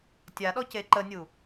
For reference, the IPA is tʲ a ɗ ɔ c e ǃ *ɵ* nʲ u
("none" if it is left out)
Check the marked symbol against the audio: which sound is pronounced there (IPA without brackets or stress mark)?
ə